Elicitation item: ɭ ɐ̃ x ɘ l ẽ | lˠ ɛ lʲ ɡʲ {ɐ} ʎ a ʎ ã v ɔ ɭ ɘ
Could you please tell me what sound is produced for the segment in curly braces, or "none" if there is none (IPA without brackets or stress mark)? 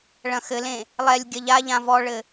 ɐ